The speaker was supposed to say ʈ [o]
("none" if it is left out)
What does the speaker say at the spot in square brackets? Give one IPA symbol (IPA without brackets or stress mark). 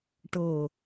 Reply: ɤ